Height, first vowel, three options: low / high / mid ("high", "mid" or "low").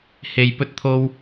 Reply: mid